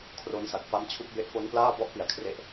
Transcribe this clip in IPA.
kʰ r o˦˥ n s a˨˩ k̚ f a˦˥ m t͡ɕʰ u˦˥ k̚ b e˦˥ ʔ f o˦˥ n p l aː˥˩ b ɔ˦˥ ʔ p i˨˩ a̯ kʰ r e˦˥ ʔ

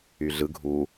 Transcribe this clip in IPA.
y ɮ ɯ ɡʱ u

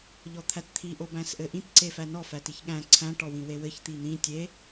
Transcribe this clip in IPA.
ʎ ɔ t̪ʰ æ t t̪ʰ i ʔ o b æ̃ s ʔ ɘ ʔ ĩ t ǀ e f æ n ɔ f æ t i ç ɠ æ̃ ǀʰ æ̃ ʈ ɔ w ĩ w e w ɘ ç t̪ i n̪ ĩ tʲ e

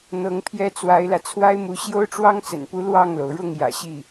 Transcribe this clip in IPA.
n̪ ɤ˧˥ ŋ pʰ j ɛ˥ t͡s w a˧˥ ɪ̯ l ä˧ t͡sʰ w a˥ ɪ̯ m u˧˥ ɕ j o˥ ʊ̯ ʈ͡ʂ w ɑ˥ ŋ t͡s ə̰˨˩ n p u˧˥ l w ɑ˥˩ ŋ l o˩ ʊ̯ ɻ ʊ˥˩ ŋ j ä̰˨˩ ɕ i˥˩

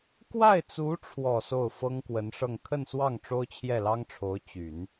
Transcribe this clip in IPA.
k w a˥˩ ɪ̯ t͡s u˧˥ ʈ͡ʂʰ w ɔ˨˩ s o˥˩ ʊ̯ f ɤ˥ ŋ k w ə˧˥ n ʂ ɤ˥˧ ŋ kʰ ə˥˧ n s w ɑ˥˩ ŋ ʈ͡ʂ o˥ ʊ̯ t͡ɕʰ j ɛ˥˩ l ɑ˥ ŋ ʈ͡ʂʰ o˧˥ ʊ̯ t͡ɕ y˨˩˦ n

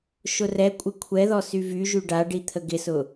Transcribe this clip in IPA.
ʃ ʊ r ɛ kʷʼ ɪ kʷʰ ɛ ð ɔ s y v y ʒ y ɖ a ɖ i t̪ʰ ə ɡ ɪ s ʊ

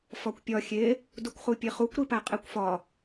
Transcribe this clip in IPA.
f ɒ kʷ pʲ ɒ xʲ e | d u kʷ χ u pʲ e χ u kʷ ɾ i p æ qʼ e kʷ f ɒ

